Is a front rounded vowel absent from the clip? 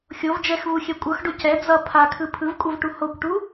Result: yes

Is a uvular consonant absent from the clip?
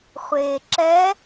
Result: no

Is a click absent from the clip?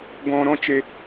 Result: yes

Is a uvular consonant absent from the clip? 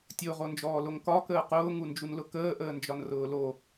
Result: no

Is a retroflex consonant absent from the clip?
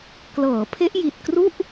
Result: yes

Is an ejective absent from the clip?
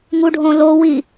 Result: yes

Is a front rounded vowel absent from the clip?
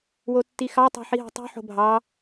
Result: yes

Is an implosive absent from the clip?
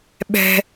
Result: no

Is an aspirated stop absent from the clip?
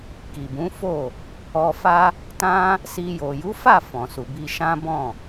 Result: yes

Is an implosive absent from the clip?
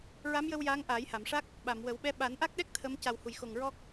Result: no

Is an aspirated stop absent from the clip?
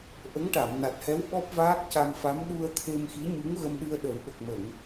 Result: no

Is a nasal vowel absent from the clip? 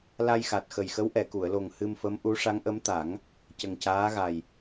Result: yes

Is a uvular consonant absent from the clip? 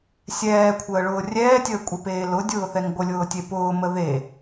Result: yes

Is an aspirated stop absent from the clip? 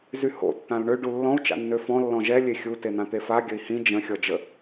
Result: yes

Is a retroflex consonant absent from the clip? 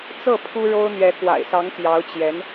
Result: no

